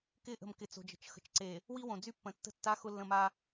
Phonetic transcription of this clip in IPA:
k ɪ˦˨ ʔ ə̤˨ m k ɪ˨ t͡s o̤˨ d͡ʒ ə̤˨ t͡ʃ x ə̤˨ t͡ʃ ǀ e˨ | w i˦ w õ˨ d͡z y˦ pː ə̃˨ tː ə̤˦ tː a˦ x ʊ˦ lː ə̃˦˨ m a˦

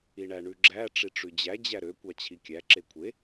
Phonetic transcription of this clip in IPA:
i ɳ æ ɳ ʉ ɡ͡ǁ æ ʈ͡ʂ i ʈ͡ʂ ʉ d͡ʑ æ d͡ʑ æ ɾ ø kʷ ɑ t͡ɕʰ i kʲ æ ǁ e kʷʰ e

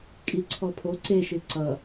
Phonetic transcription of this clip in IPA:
kʼ i ǀʰ ɔ pʰ o ǀ e ʃ ɨ ǀ ʌ

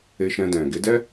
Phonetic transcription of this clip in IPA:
e˧ ʃ ɛ̃˧ d ɛ̃˨ ɡ e˨˦ d ɛ˦

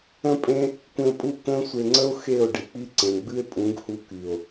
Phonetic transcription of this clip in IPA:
ə̃˦ pʼ ẽ˦ | kʷ ẽ˧ o̯ pʼ u˦˨ k ə̃ː˦ sʷ e˧ ŋ͡ǀ ə˦ o̯ x e˦˨ o̯ ɖ i˨ k͡p i˦ ǀ ẽ˨ ɡ͡b ɨ˦ e̯ pʼ ũ˨˦ ɡ h u˧ k y˨ o̯

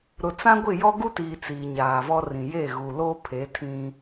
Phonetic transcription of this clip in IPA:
ɾ ʊ˨ t͡s ã˦ ɡʷ ɪ˦˨ j ɔ˦ ɡ u˦ t iː˨ t͡s iː˨ ɲ aː˨ v ɔ˦ r ĩ˨ j e˦˨ ɣ u˨ l o˦ pʰ e˨˦ tʰ ĩ˦

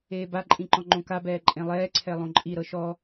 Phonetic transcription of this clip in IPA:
eː b a ǃʼ ĩ ǃ ɔ̃ ŋ͡ǃ õ k a b ɛː ǃʼ ẽ lˠ ɛː ǀʰ ɛ lˠ õ ǃʼ i ɾ ɤ ʃ ɔ

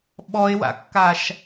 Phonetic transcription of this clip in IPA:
ɓ ɔ e̯ w a̰ kː a ʃ

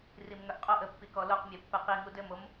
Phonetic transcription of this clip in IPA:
r i m ŋ œ ʔ qʼ o ʔ ə pː i k ɔ l o q mʲ œ pː ɘ q i ŋ u d ɘ m o m

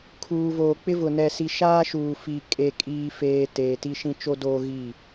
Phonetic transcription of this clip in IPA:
kʰ uː˨ v oː˨ k͡p ɪ˦ v ʊ˨ n ɛ˨ s i˨ ʃ aː˦ ʃ uː˨ f i˨ kʼ e˨ kʼ iː˨ f eː˨ t eː˨ t i˦ ʃ ĩ˦ t͡ʃ o˦ d oː˦ ɣ i˦˨

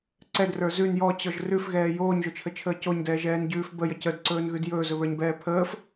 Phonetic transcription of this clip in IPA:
ǀ ɛ d r ə˞ z ʉ n j ɔ t͡ɕ ɔ ʒ r ʉ f ɣ ɛː j oː ɲ ʒ ɵ t͡ʃʰ ə t͡ʃʰ əː c o ɲ d ɛː ʒ ɛː n ɟ ʉː f b ə j ə c ə d ǀ ɵː n ɣ ʉ d j ɵː z ɵ β ə˞ ɲ b ɛː pʰ əː f

